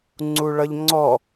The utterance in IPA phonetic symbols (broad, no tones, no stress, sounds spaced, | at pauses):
ŋ͡ǀ u ɭ ʌ ʎ ŋ͡ǀ ɔ